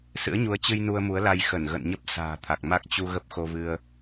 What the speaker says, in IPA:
s ɨ̰˧˥ ə̯ ɲ u˨˦ ə̯ t͡ɕ ɨ˧ j n u˧ ə̯ m u˨˦ ə̯ l a˧ j x ə˧˩ n ɣ ə̰˧˨ n ɲ ə˦˥ p̚ s a̤ː˨˩ t̪ʰ a˨˩ k̚ m a˦˥ k̚ t͡ɕ u˧ ɣ ə˦˥ p̚ x o˧ v ɨ˧ ə̯

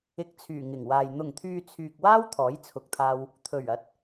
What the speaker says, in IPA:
ɪ˨˥ k̚ t͡sʰ yː˨˩ ŋ ɪ˨˩ ŋ w aː˨ j n̪ ʊ˨˩ ŋ t̪ʰ yː˨ t͡sʰ yː˨ k̚ w aː˥ w t̪ʰ ɔː˨˥ j t͡sʰ ʊ˨ k̚ t̪ʰ aː˧ w | t̪ʰ ɵ˨˩ ɥ ɐ˨ t̚

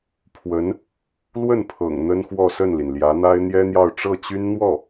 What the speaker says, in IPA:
pʰ w ə˧˥ n | l w ə˥˩ n pʰ ɤ̰˨˩ ŋ n̪ ə˥ n x w ɔ˥˧ s ə˥˩ n l i˩ n l j ä˧˥ n̪ a˥ ɪ̯ n̪ j ɛ˥ n̪ j ɑ˥˧ ʊ̯ ʈ͡ʂ ɤ˥˩ t͡ɕ y˥ n n̪ w ɔ˥˩

